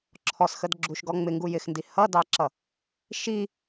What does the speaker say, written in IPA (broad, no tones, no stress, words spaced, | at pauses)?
ǁʰɔsxədɡ͡ǁuʃɡɔ ŋ͡mɪŋɡu jɪxndi hʌdɑǁʌ | ʃi